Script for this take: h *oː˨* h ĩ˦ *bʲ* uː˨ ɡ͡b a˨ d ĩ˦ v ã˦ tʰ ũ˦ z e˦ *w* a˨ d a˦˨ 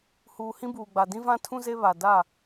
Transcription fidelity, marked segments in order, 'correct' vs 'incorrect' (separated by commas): incorrect, incorrect, incorrect